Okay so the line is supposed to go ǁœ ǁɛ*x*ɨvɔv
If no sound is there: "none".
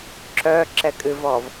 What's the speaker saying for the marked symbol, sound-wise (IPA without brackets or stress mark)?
kʼ